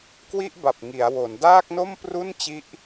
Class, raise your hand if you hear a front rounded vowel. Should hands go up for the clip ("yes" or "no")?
no